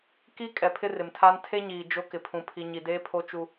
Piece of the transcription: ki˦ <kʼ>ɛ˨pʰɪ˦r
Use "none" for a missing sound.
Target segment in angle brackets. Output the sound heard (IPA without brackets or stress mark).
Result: kʼ